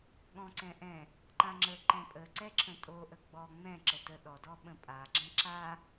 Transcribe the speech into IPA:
ɠ ɔ̃ ǀ ɛ̃ ʔ ɛ̃ | ǃ ã ŋ͡ǁ ə ǃ ɛ̃ pʼ ə ǀ ɛ ǁʰ ə̃ tʼ o ʔ ə ɡ͡b ɔ ŋ͡m ɛ̃ ǁ ə t ə ɗ ɔ d ɔ ɓ ə̃ pʼ a ɡ͡ǁ ɛ̃ ǁ a

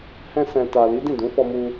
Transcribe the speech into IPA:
h ɛ̃˧ s ɛ̃˨ t a˨ l i˨˦ d ĩ˦˨ d ũ˨˦ f ɔ˧ m u˧

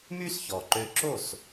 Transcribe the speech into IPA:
m y˥ s ç ɔ˩ ǃ ø˧ ǁ o˥˩ s

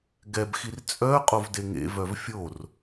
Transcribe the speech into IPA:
ɡ ɛ b x i r t͡sʼ œ qʼ o v d e ŋ ḛ v œ v fʲ o r

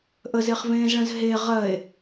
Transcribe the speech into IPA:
ʔ ə z e χ v ẽː z ɭ ə̃ z ɦ e ʁ ɜ e̯

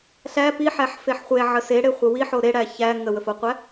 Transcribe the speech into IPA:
ɬ æ p i ħ æ ħ f e ħ χʷ e ʕ ə s e ɽ e χʷ ə w i ħ o ɾ e ɽ æ ç æ ŋ ə w ə f o qʷ æ

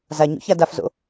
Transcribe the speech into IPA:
z a ɲ o̰ ç a d a f z o̰

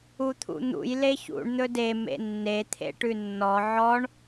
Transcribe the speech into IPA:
u t̪ʰ ṵ n̪ ṵ j l e ç ṵ ɳ n̪ ɵ d e m ḛ nː e t̪ʰ ḛ ʈ ʉ nː ɔ ʕ ɔ ɳ

